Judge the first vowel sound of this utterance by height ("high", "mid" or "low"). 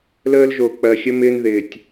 mid